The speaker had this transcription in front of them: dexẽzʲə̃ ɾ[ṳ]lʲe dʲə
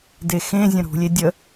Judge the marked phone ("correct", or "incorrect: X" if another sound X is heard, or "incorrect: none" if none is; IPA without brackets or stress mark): correct